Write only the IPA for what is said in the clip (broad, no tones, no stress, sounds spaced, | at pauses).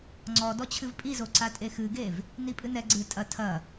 ŋ͡ǀ ɔ d ɔ t͡ɕʰ ɨ v pʼ i z o ǀ a tʼ e x ɨ ɡ e v | n i pʼ ɨ n ɛ ɡ͡ǀ ɨ tʼ ɐ tʰ ɐ